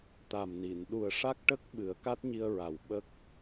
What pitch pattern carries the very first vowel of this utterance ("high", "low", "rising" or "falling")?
low